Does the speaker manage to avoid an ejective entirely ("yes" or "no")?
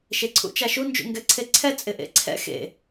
no